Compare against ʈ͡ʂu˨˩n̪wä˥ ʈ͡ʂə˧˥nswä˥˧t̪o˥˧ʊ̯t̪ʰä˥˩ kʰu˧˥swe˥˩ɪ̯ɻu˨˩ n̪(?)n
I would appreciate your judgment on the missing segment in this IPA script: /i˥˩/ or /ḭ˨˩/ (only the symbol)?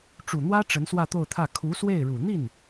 i˥˩